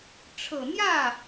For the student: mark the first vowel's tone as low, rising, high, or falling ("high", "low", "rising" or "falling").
low